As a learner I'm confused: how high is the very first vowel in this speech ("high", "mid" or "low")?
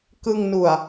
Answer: high